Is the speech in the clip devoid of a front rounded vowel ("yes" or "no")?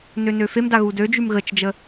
no